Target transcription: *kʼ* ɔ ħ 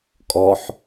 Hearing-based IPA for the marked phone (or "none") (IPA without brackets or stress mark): kʼ